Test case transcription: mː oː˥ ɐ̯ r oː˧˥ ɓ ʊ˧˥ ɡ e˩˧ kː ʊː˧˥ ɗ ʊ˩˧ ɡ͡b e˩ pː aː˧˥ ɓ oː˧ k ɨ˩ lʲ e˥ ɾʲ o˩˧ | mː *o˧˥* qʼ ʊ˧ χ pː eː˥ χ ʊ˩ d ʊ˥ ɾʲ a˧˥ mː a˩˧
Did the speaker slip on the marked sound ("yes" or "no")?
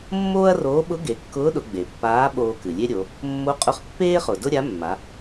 no